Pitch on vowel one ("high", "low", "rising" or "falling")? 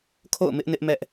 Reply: falling